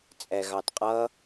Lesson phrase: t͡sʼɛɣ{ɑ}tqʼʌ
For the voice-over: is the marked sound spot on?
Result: yes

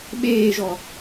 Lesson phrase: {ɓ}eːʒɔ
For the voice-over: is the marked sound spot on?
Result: yes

